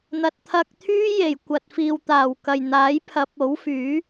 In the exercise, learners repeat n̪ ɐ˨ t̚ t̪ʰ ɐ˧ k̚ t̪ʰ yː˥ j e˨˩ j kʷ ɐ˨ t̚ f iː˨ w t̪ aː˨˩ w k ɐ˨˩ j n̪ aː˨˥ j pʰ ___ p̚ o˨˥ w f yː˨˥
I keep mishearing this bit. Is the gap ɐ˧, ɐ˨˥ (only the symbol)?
ɐ˨˥